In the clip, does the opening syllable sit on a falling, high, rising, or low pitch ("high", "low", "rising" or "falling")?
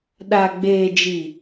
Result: low